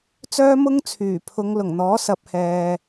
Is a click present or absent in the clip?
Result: absent